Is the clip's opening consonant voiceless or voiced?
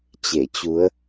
voiceless